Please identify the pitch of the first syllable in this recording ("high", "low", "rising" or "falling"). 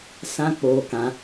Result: high